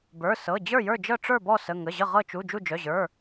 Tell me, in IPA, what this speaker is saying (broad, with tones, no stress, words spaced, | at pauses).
bə˞˩˧˩ sɤ˩˧˩ d͡ʑə˞˦˨jə˞˦˨d͡ʒɤ˦˨ ʈ͡ʂə˞˦˨bɔ˦˨ sə˩˧˩ ŋə˩˧˩ʑə˦˨ ʁɤ˦˨t͡ʃu˩˧˩ d͡ʒu˦˨d͡ʒœ˩˧˩ʑə˞˩˧˩